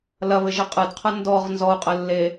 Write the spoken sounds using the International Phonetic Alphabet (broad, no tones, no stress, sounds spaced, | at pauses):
l ɐ β ɘ ʒ ɘ qʼ ɨ d qʰ ɐ n d ɔ ʁ n z ɔ u̯ qʼ ɘ lː e